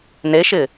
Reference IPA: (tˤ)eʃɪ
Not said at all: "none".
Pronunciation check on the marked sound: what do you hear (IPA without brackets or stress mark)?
n